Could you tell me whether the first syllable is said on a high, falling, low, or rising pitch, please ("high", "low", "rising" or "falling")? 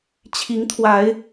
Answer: rising